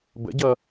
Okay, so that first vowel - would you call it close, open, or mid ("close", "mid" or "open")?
mid